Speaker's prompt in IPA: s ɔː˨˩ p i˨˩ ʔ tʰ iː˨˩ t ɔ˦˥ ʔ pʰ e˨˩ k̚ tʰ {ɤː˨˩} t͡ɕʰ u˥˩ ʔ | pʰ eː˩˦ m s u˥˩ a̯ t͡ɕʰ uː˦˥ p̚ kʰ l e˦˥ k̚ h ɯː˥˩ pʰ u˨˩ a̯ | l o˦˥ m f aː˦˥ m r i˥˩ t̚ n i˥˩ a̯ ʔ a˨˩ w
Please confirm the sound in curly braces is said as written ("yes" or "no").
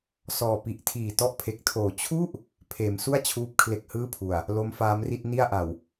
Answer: no